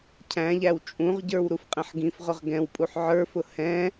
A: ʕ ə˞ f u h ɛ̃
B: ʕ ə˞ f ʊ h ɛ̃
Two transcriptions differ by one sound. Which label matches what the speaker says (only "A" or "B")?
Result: B